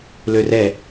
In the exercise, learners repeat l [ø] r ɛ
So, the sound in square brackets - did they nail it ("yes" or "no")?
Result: yes